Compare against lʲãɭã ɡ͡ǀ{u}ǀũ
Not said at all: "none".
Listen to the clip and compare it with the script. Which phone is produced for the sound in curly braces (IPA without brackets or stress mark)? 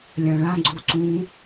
u